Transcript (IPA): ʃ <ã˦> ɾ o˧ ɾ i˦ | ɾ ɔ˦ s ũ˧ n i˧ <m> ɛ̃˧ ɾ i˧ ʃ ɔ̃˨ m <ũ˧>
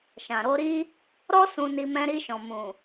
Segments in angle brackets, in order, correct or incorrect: incorrect: ã˨, correct, incorrect: ũ˨

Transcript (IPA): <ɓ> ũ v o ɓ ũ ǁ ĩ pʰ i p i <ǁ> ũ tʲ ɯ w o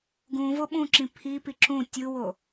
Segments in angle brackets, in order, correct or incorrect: incorrect: ɡ, correct

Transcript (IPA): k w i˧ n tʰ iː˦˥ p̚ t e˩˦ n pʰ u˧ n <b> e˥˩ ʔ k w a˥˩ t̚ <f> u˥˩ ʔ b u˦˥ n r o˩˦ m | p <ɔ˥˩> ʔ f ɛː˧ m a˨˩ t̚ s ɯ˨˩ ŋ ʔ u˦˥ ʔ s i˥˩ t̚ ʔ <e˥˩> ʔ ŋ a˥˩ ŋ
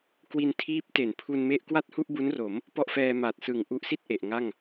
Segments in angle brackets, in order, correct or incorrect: incorrect: m, incorrect: h, correct, incorrect: e˨˩

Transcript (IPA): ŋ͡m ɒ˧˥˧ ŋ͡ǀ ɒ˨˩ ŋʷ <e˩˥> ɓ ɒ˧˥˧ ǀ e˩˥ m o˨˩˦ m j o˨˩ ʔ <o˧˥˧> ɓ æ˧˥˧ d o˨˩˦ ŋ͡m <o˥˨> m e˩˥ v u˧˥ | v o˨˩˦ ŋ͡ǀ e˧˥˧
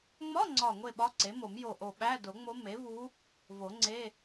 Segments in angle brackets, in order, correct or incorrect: incorrect: e˥˨, incorrect: o˨˩, incorrect: o˧˥

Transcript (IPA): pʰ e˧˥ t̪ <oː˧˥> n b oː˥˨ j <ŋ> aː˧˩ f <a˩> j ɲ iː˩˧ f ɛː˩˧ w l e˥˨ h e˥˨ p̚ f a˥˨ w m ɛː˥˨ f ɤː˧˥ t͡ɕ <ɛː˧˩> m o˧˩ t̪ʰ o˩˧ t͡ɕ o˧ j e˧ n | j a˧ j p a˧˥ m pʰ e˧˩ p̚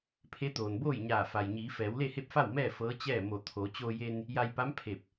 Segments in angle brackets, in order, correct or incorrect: incorrect: oː˩, incorrect: ɲ, correct, incorrect: ɛː˥˨

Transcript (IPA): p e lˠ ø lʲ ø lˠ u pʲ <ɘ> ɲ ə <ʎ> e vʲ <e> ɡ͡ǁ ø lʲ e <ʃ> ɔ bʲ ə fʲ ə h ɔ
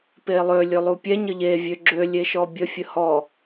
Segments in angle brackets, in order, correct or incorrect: incorrect: ɛ, correct, incorrect: ø, correct

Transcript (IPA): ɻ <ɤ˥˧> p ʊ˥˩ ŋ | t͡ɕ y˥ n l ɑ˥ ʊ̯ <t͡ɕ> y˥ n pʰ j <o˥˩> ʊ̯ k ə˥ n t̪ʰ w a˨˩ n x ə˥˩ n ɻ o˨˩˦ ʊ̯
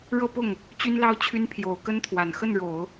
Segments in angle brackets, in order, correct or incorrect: correct, incorrect: t͡ɕʰ, incorrect: o˨˩

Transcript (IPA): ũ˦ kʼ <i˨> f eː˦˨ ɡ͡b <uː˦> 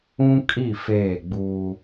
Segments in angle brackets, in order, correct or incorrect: incorrect: i˦˨, correct

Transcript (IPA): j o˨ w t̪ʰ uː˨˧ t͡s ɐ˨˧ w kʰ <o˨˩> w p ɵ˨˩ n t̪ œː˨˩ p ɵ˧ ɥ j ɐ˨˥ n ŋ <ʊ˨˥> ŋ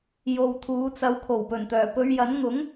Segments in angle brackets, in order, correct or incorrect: correct, correct

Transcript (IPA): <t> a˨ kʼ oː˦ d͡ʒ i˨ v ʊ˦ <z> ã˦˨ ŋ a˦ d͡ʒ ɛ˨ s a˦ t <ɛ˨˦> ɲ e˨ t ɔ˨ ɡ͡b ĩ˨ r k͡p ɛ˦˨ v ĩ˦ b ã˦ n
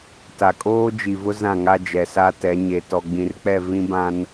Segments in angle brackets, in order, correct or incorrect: correct, correct, correct

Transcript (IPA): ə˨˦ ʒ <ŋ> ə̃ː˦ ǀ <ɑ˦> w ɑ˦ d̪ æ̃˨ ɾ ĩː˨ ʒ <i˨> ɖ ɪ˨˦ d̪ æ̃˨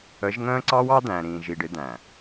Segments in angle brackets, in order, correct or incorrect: correct, correct, correct

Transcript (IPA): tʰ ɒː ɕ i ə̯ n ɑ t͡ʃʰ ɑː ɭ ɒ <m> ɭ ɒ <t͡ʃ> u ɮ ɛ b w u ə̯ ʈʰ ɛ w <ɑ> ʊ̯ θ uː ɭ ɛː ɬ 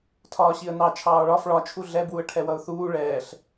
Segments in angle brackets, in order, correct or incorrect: incorrect: f, incorrect: t͡ʃʰ, incorrect: ʌ

